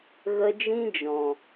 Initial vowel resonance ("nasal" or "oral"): oral